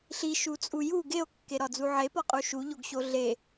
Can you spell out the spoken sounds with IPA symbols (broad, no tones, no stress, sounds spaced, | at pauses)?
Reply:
ɬ i ʃ u t͡sʼ u j u ɡ e o̯ kː e ɾ ɒ d͡z u ʕ e p ɒ qʼ u ʃ u ʎ o ɡ ɕ o ɮ e